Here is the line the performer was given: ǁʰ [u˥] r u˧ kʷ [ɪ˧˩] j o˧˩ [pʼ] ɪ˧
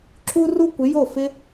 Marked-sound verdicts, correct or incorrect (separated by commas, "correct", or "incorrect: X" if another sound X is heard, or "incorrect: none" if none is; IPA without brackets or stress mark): incorrect: u˧, incorrect: ɪ˩˧, incorrect: f